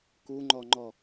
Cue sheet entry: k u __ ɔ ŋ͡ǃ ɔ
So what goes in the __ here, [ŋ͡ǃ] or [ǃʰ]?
ŋ͡ǃ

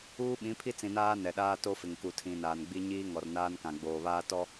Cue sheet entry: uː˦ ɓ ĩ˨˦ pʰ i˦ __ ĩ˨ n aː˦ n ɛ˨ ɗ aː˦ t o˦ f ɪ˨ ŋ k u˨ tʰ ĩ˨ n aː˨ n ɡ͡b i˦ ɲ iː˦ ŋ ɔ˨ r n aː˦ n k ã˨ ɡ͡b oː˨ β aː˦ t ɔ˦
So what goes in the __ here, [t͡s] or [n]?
t͡s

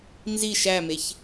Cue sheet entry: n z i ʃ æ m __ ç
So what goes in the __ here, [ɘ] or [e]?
e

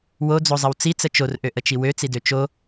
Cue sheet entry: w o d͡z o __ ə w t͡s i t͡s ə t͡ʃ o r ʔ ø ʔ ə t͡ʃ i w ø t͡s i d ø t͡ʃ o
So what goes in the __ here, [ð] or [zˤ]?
zˤ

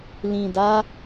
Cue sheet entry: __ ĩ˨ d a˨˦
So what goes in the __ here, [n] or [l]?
l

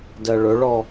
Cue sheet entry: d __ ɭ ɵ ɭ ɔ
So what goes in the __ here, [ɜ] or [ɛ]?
ɜ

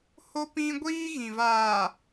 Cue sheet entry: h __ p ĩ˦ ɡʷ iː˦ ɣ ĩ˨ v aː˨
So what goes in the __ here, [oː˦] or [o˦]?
o˦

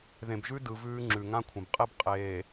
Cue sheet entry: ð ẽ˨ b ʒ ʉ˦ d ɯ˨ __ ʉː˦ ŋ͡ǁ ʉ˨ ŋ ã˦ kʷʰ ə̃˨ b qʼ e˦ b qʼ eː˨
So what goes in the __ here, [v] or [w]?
v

